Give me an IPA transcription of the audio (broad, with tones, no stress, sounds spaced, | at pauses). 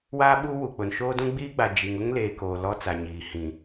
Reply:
w aː˦ ɓ u˦ w u˨ k͡p ʊ˨ n ʃ oː˦ d ũ˦ ɡ͡b iː˦ ɡ͡b a˨ d͡ʒ i˨ ŋ ʊ˦ ŋ l eː˨ k oː˨ l ɔ˦ t͡s a˨ ɲ iː˨ h ĩ˨